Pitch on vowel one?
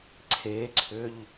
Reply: rising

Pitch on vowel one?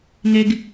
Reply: high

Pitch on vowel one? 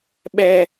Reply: high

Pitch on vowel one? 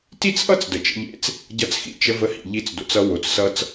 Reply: high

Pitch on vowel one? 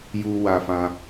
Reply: high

